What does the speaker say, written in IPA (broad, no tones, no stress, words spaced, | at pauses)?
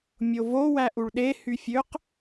mʲovo wæʔuɭɗe hyfʲøq